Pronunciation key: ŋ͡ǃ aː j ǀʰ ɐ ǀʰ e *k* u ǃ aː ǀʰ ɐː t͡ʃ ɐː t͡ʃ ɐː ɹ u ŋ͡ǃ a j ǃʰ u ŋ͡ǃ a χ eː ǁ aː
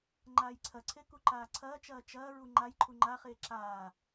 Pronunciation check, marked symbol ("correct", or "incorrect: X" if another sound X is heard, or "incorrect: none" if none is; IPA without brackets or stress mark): correct